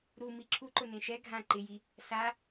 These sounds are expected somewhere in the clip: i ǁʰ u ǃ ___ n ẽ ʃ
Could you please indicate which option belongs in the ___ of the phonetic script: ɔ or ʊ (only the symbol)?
ʊ